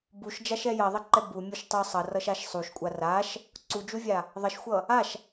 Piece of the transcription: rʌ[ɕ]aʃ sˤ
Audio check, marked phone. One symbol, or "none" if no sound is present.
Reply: ʃ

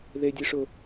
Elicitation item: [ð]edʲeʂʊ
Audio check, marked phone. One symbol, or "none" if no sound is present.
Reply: ð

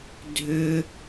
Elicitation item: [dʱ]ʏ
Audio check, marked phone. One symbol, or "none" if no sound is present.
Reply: dʱ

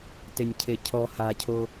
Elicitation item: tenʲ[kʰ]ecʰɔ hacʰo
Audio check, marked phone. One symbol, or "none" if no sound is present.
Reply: cʰ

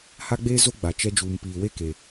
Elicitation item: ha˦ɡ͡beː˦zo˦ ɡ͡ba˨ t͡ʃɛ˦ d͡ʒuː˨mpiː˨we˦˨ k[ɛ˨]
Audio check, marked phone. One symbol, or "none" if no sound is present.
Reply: e˨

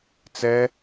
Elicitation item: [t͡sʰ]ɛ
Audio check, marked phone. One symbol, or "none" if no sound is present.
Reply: t͡s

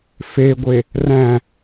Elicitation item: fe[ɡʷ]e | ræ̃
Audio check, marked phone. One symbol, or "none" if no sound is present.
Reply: ɡʷ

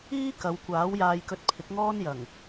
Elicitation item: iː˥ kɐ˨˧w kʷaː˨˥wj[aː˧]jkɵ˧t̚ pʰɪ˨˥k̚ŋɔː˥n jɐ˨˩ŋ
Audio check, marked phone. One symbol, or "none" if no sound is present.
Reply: aː˧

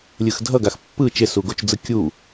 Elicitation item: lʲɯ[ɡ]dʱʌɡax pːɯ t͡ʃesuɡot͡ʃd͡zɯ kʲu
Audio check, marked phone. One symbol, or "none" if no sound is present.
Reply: x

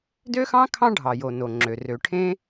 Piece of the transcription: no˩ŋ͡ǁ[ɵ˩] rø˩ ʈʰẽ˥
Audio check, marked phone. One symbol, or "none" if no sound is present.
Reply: ø˩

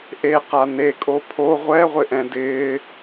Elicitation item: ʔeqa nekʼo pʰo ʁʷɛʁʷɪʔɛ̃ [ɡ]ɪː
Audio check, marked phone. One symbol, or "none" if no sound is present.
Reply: d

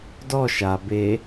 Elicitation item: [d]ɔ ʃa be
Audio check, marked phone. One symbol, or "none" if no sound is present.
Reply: d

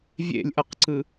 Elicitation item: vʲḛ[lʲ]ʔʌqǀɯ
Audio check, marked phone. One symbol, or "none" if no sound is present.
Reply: lʲ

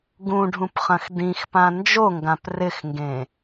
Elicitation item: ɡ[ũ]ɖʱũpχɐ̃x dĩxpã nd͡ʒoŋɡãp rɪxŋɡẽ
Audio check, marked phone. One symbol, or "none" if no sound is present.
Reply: ũ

